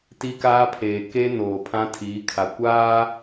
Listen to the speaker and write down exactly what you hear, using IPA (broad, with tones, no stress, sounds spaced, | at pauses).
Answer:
t i˦ k aː˦ pʰ eː˨ k e˦ n oː˨ pʰ ã˦ tʰ iː˨˦ kʰ a˨ kʷ aː˦